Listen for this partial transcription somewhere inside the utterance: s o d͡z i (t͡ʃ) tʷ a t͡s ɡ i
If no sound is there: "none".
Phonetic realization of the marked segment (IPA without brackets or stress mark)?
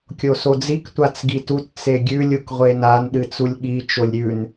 k